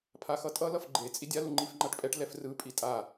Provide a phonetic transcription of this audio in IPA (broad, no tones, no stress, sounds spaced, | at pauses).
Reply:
pʰ a x ʌ tʼ ʌ l ʌ f ɡ͡ǃ e t͡sʼ i dʲ a l u ŋ͡ǃ i f ŋ͡ǃ a ʈ pʼ ɛ ʈ l ɛ f r ɯ pʼ i tʼ a